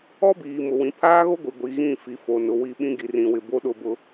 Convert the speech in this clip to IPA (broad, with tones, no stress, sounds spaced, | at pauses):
ɔ˦ b iː˨ m ʊ˨ w ĩ˨ pʰ aː˦ ɣ o˦ ɡʷ i˨ ɡʷ i˨ ɣ ĩ˦˨ f i˨ f o˨ n ʊ˨ w i˦˨ ɓ ĩ˦ ɡ i˨ r ĩ˨ w ɪ˨ b o˦ ɗ ʊ˦˨ b ʊ˦